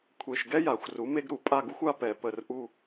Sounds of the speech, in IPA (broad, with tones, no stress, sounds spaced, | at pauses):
kʷʰ e˨˩ ʃ ɡ ɛ˦ j a˨˩ xʷ r u˩˥ m e˦ ɡ ɾ u˨˩ pʼ a˦˨ ɡ u˦ xʷ a˦ p ɛ˨˩ p ə˦˨ r ʔ u˦˨